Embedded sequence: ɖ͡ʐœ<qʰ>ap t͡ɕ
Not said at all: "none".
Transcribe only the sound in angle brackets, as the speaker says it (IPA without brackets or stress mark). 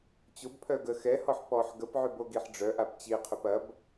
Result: ʔ